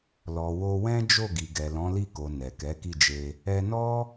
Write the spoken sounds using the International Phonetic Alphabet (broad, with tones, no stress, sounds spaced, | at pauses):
l ɔ˨ w o˧ w ɛ̃˦ d͡ʒ o˦˨ ɡ i˨ ɡ ɛ˨ l ɔ̃˨˦ l i˦˨ k o˨ n ɛ˨ k ɛ˨˦ k i˦˨ d͡ʒ e˧ | ɛ˧ n ɔ˦